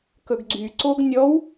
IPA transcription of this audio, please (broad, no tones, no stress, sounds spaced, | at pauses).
k ɵ ɡ ɡ͡ǀ y ǀ o ɡ nʲ ɔ w